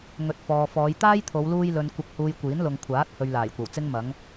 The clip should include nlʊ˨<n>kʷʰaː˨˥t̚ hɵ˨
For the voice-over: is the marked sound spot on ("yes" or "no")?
no